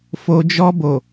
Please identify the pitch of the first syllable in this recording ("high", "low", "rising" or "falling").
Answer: low